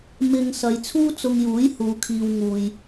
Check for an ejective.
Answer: absent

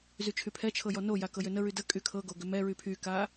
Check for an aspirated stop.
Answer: present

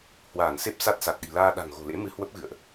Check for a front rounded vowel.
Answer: absent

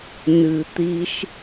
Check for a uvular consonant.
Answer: absent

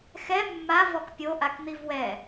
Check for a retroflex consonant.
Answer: absent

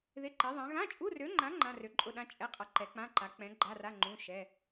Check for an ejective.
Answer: present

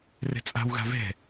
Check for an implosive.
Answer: absent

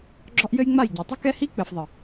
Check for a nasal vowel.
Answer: absent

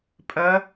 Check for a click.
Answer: absent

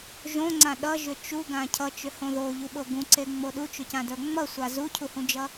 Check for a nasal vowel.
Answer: present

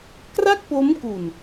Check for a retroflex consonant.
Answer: absent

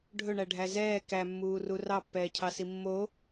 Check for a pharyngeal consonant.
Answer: absent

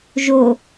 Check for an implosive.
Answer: absent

